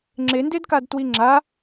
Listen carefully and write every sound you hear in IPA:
ŋ͡ǁ e n d e d k a d t w i ŋ͡ǁ a

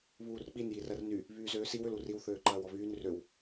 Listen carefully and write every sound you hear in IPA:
β uː r k͡p i n j i r ɐ r n y | β yː z øː s i w ʏ l u r i w θ øː ǃ ɐː w ɔ β yː n r ø w

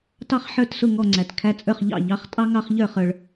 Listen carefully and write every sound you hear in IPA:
t ɑ˥ χ ħ ə˞˥˩ t s ʊ˥˩ ŋ ɔ˥˩ ŋ͡ǀ æ˩ t kʰ æ˧ t͡sʼ ə˞˥˩ χ ʎ ɑ̰˥˩ ʎ ɑ˩˥ χ tʼ ɑ˥ ŋ ɑ˧ χ ʎ ə˞˥˩ χ ə˞˩ ɭ

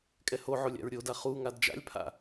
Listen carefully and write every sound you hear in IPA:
kʼ ɛ h o ʕ o lʲ a̰ ɹ ɾʲ o d a χ u ŋ a d d͡ʒ a̰ lʲ pʰ a̰

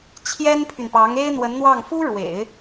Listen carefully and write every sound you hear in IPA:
t͡ɕʰ j ɛ˥ n pʰ y˨ n p ɑ˧˥ ŋ e˥ ɪ̯ n̪ w ə˧˥ n n̪ w ɑ˥˩ ŋ f u˥ ɻ w ḛ˨˩˦ ɪ̯

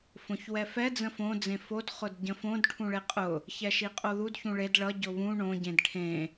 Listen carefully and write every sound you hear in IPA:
f õ ç w ɛ f ɛ d͡z ə̃ f õ d͡z ẽ f o d χ ʊ d ɟ ə̃ f õ d ʈʰ ũ ɭ e qʼ ʊ | ç ɛ ʃ i qʼ o ð u d ç ũ ɭ e d ɭ ʌ ɟ ʊ β ũ ɳ õ ɟ ẽ d ʈʰ ẽ

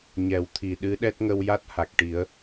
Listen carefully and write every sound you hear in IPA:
ɲ ɛ˨˩ w t̪ʰ i˨˩ ɗ ɨ˧˥ ɗ ɛ˦˥ t̚ ŋ ə˧ w j a˦˥ t̚ h a˨˩ k̚ ʈ i˨˩˦ ə̯

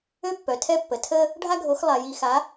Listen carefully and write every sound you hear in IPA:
ø˦ pː œ˨ tʰ ɛ˦ pː ə˨ tʰ ə˦ | ɖʱ a˦ ɡʱ o˨˦ x lˠ a˨ j i˨ x a˨˦

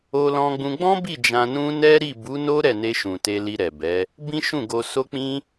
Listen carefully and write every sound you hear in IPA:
o˧ l ɔ̃˧ ɡ͡b ũ˧ ɡ͡b ɔ̃˦ b i˦˨ d͡ʒ ã˧ n ũ˦ n ɛ˦ ɾ i˦˨ b u˨˦ n o˦ ɾ ɛ˦˨ n e˧ ʃ ũ˨ t e˧ l i˧ ɾ ɛ˨ b ɛ˨˦ | b ĩ˦ ʃ ũ˦˨ ɡ o˧ s o˦ k͡p ĩ˦

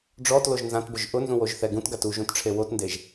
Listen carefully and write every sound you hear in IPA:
ɖ͡ʐ ɔ t l o ʒ n z ã t b ʊ ʒ ʔ ʊ n z ũ w o ʒ θ ɛ ɡ ũ t ɡ a t u ʒ ũ t ʈ͡ʂʰ e w o t n d e ʒ

